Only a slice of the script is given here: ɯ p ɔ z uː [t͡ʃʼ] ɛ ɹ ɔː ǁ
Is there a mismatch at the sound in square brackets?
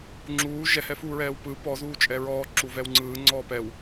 no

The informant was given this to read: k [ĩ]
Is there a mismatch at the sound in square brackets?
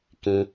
no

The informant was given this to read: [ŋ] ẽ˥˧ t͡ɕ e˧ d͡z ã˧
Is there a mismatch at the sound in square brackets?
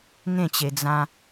no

